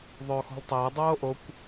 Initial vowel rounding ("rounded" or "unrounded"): rounded